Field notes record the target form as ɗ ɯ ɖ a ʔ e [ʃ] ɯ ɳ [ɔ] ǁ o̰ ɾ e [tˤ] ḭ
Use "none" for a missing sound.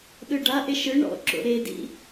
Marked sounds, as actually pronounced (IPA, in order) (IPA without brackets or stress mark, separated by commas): ʃ, ɔ̰, d